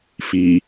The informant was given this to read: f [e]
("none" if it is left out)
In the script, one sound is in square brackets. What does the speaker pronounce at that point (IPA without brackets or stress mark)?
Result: i